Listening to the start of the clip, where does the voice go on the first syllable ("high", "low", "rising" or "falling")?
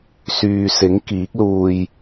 low